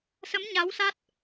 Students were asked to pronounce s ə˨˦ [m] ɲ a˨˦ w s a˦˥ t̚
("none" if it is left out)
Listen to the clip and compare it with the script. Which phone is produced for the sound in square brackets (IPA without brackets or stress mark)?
m